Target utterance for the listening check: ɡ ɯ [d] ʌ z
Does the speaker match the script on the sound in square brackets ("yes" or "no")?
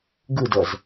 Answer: yes